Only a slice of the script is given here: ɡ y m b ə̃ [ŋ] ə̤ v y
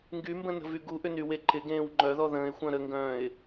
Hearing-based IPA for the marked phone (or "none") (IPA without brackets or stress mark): n